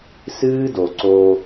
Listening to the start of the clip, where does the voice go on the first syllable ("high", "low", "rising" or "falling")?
high